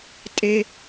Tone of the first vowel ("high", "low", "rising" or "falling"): high